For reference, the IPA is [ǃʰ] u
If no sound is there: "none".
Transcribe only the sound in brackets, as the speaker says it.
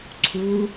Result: ǀʰ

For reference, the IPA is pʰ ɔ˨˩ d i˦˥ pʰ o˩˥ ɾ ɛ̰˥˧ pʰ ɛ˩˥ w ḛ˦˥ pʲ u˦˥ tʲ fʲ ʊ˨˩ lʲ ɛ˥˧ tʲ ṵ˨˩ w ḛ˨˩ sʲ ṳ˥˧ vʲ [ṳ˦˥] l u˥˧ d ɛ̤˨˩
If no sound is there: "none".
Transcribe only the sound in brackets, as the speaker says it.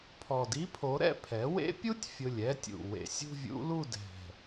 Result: ṵ˦˥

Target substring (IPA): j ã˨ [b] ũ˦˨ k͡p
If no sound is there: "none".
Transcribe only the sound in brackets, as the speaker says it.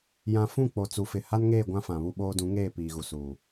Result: f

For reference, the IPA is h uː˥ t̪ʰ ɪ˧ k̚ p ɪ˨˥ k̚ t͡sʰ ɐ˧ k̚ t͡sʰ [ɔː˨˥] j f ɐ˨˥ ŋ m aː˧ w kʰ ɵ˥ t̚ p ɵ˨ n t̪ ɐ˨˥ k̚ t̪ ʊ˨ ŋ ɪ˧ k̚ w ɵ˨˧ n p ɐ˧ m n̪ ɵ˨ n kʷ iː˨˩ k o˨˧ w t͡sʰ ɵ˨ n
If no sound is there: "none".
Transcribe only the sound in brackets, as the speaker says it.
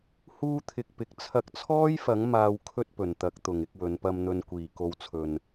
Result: ɔː˥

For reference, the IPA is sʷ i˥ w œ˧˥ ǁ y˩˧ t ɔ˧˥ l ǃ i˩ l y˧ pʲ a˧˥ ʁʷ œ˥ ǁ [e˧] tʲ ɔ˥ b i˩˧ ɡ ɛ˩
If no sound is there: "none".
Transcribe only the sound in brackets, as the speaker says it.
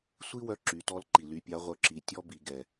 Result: i˧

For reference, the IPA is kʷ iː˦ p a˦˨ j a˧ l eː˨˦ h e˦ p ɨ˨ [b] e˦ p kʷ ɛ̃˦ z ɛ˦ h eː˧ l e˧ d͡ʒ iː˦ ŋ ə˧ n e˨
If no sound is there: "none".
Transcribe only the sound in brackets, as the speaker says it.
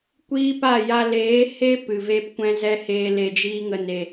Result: v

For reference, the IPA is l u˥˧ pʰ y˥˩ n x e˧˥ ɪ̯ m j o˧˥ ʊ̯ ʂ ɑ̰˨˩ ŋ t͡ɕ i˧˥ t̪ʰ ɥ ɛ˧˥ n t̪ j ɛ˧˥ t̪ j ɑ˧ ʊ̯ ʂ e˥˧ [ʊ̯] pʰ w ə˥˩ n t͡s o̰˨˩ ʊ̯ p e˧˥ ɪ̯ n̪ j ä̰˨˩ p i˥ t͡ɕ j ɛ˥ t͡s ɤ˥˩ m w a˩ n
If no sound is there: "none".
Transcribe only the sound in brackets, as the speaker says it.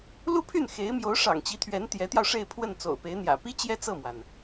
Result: ɪ̯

